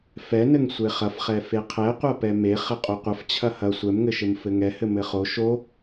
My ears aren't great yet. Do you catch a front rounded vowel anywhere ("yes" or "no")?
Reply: no